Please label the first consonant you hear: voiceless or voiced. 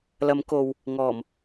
voiced